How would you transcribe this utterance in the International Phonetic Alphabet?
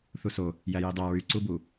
θ u s o | j æ j i dˤ æ ɹ y ǀ u b u

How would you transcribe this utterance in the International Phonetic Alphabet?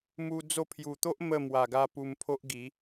m u˧ d͡z o˧ pʰ j u˨˩ t̪ o˦ ʔ m ə˥˧ m w a˨˩ ɡ a˧ p u˧ m pʰ o˦ ʔ ɡ i˨˦

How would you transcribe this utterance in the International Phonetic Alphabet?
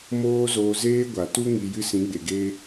m oː˦ z oː˧ z eː˦ ɡʷ a˨ t u˦ ŋ i˧ j ɨ˦ s ĩ˨˦ ɡ͡b e˨ ɡ eː˧

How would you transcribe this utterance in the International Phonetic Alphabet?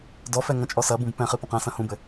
d ɔ f ɛ ŋ ɐ̃ t͡ʃʼ ɔ s ɐ b ũ b p ɛ̃ χ ɨ p ɐ̃ q ɛ̃ s ɐ̃ h ũ b ɘ

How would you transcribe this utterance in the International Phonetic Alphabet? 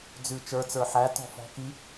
d͡z ʉ t͡ʃ ə˞ t͡s ə˞ ħ æ t ɔ̤ f ɔ̤ k i

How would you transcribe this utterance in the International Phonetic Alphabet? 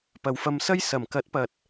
p ɐ˨˧ w f ɐ˧ m s ɐ˥ j s ɐ˨˩ m k ɐ˨˥ t̚ p ɐ˨ t̚

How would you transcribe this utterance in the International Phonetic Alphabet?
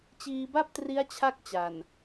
t͡ɕ iː˧ b a˥˩ p̚ t r i˦˥ a̯ t͡ɕʰ a˥˩ k̚ t͡ɕ a˨˩ n

